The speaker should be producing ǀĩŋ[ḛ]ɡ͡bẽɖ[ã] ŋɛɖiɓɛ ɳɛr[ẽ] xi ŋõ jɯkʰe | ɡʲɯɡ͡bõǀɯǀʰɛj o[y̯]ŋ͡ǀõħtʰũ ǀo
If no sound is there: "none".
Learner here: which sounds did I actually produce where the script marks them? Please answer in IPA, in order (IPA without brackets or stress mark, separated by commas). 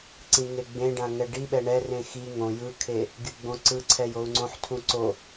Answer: e, ã, ẽ, u̯